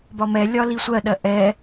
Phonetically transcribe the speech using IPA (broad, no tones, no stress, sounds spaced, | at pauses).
b ɒ m ɛ lʲ ɒ l i sʷ ɜ ɗ ɜ ʔ ɛ